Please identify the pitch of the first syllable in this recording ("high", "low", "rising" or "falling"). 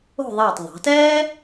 falling